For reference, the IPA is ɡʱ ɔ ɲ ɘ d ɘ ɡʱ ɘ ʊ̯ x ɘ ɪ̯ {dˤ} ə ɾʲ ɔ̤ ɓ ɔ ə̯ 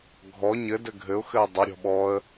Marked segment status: correct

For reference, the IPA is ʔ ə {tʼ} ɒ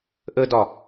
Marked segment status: incorrect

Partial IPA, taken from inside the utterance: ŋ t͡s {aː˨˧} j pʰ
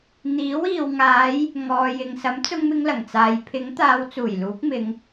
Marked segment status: incorrect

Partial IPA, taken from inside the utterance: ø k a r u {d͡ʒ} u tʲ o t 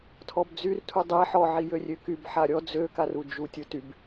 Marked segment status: correct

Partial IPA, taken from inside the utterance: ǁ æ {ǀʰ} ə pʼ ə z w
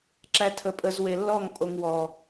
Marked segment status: incorrect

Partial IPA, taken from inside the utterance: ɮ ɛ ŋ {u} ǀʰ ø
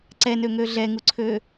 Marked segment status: correct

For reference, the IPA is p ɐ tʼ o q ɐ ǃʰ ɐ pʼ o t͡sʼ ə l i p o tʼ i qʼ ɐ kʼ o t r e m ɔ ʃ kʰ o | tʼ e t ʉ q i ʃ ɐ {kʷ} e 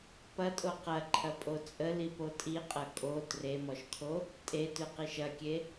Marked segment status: incorrect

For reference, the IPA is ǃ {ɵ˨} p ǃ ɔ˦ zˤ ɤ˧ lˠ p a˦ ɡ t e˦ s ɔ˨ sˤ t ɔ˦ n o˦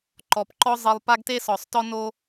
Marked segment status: incorrect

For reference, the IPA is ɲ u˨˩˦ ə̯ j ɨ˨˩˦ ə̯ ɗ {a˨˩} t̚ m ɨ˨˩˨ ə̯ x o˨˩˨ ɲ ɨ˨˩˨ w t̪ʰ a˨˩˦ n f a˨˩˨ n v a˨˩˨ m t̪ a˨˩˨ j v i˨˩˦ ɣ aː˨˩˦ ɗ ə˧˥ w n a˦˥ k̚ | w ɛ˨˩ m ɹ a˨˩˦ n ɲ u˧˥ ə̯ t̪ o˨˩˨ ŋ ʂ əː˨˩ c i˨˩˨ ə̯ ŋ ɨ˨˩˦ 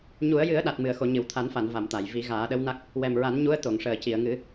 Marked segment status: correct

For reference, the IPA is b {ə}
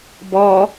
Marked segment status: incorrect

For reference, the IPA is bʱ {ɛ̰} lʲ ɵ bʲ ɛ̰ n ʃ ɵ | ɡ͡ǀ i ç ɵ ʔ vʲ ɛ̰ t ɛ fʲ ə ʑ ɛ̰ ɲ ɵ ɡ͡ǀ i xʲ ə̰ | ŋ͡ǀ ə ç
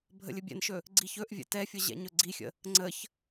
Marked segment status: incorrect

